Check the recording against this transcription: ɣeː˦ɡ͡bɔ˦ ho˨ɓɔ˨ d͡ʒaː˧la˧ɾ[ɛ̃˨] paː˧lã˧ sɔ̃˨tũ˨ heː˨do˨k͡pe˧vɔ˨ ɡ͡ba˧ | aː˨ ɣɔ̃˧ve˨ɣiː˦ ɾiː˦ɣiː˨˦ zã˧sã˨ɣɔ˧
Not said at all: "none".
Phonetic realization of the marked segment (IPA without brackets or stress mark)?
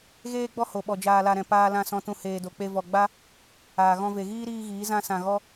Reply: ɛ̃˨